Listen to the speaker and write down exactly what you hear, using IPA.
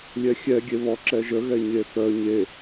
lʲ ɛ xʲ ɛ ɡʲ e β ɔ ǁ ɛ ʒ ə ɣ ɛ ɲ e θ œ ɲ e

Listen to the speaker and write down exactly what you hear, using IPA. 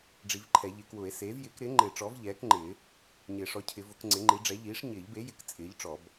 ɖ͡ʐ i˨˩˦ v ǃʰ ɛ˨˩˦ ʎ ɪ˨˩˦ k w ʊ˨˩˦ e̯ s eː˩˥ v j ɪː˩˥ k ɾ ɪː˩˥ ŋ͡ǃ ɪː˨˩˦ ʈ͡ʂ ɔ˩˥ v ʎ ɛː˩˥ k ŋ͡ǃ ɪː˨˩˦ | ɲ ɪː˨˩˦ ʂ ɔ˩˥ cʰ ɪ˨˩˦ v ʊ˨˩˦ k ŋ͡ǀ ɪ˩˥ ŋ͡ǃ i˩˥ ɖ͡ʐ ɛ˩˥ ʎ iː˩˥ ʂ ɲ ɪː˨˩˦ ʎ b e˩˥ j ɪ˩˥ k t͡sʼ ɪː˩˥ ʎ ʈ͡ʂ ɔ˨˩˦ b

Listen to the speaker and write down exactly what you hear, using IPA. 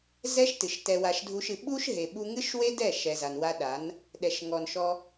z ɛ˦ ʃ t ɨ˨ ʃ t ɛ˧ w a˧ ʃ dʱ u˦ ʃ ɨ˧ ɓ u˦ ʃ ɦ e˨ ɓ u˧ ŋ ɨ˦ ʃ w e˦ d ɛ˦˨ ʃ ɛ˨ z a˨ n w a˧ ɗ a˨˦ n | ɗ ɛ˨ ʃ ŋ ɔ˨ n ʃ ɔ˧

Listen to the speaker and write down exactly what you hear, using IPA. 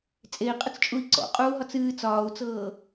t͡sʼ e i̯ qʼ ə t͡s t͡ʃʼ u i̯ ǀ ɔ̰ qʼ uː ɦ ɒ t͡s ɨː t͡s ɒː u̯ t͡s ɤː

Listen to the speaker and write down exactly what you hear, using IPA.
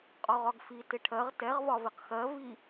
qʼ ɒ ʁ ɒ ɡ f i t ɪ ʈʰ ɜ ʁ t ɛ ʁ v ɒ v ɪ q x ɜ v i

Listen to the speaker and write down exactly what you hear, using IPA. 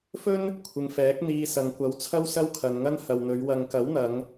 f ɵ˥ n | kʷʰ ɪ˨ ŋ f ɛː˨˥ k̚ n̪ iː˧ s ɐ˨ ŋ kʷ ɐ˨˥ w t͡sʰ ɐ˥ w s ɐ˥ w kʰ ɐ˨ n ŋ ɐ˥ n h ɐ˨ w n̪ ɵ˨˧ ɥ w ɐ˨ ŋ k ɐ˨˥ w n̪ ɐ˨˧ ŋ

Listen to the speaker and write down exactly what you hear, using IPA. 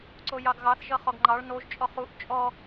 ǀ o j ɑ ɡ ɣ ɑ θ ʒ ʌ χ ɔ ɡ ŋ͡ǃ ɑ ɭ n o ʒ t͡ʃʼ ɔ χ u ʔ t͡ʃʼ ɔ

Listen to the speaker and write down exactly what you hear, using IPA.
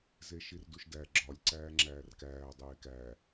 z e ʃ i r d u ʃ d æ ɡ͡ǁ ɒ lʲ ǀ æː ŋ͡ǁ æː r k æː dˤ eː k æː

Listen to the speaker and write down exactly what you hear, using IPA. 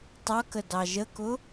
tˤ ʌ k ə d ɑ ʒ ə k ʊ

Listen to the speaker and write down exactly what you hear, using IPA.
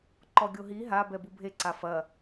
ǃ ɔ ɡʲ o ɦ i ɦ a b ɛ b u bʱ e ǀ a f ɐ

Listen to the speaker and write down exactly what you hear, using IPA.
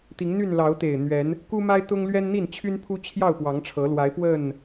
t̪ i˨˦ ŋ n̪ y˥˨ n l ɑ˨˦ ʊ̯ t̪ e˨˩ ɪ̯ n̪ ɥ ɛ˨˦ n | k u˦ m a˦ ɪ̯ t̪ ʊ˦ ŋ l ɥ ɛ˦ n n̪ i˥˨ n t͡ɕʰ y˦ n pʰ u˦ t͡ɕʰ j ɑ˥˨ ʊ̯ p w ɑ˨˦ ŋ ʈ͡ʂʰ ɤ˨˦ l w a˨˦ ɪ̯ p w ə˥˨ n

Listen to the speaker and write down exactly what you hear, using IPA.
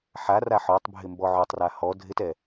ħ a r a ħ ɔ tˤ bʱ ɪ m b ɔ ʕ o tˤ r a h ɔ dʱ ɪ t ɛ

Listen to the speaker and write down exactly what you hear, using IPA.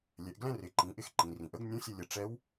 lʲ ɛ˩˧ ʔ ɡ l ɛ̃˥ r ɪ˩˧ ǃ ĩ˩˧ ʔ ɪ˧ x ǃ ĩ˩ r ĩ˩ ʔ ə˧˥ ɡ nʲ ũ˧˥ sʲ ə˧ lʲ ə˩ ʈ͡ʂ ɛ˧˥ w

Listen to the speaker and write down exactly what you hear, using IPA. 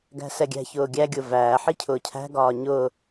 ɡ æ̤ s ɛ ɡʲ æ̤ ç ʊː ɡʲ æ ɡʲ ʊ v æː ħ i cʰ ʊː cʰ æ̤ ɡ ɒː ɲ ʊ

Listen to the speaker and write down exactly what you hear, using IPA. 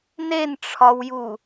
n e n ʈ͡ʂʰ ɒ w j u

